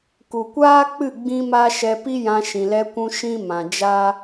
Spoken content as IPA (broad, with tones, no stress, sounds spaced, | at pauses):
k u˨ kʷ aː˦ k͡p ɨ˦˨ ɡ͡b ĩ˦ m a˦ ʃ ɛ˧ p i˦ j ã˧ ʃ ĩ˨ l ɛ˧ kʷ ũ˧ ʃ ĩ˦ m ã˨ d͡ʒ a˦